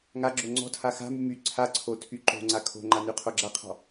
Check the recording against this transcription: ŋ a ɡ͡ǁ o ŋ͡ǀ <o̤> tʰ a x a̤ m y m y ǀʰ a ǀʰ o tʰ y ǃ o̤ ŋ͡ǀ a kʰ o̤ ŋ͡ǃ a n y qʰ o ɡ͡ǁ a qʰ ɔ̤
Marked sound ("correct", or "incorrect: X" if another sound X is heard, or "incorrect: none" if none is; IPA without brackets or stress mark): incorrect: ɔ̤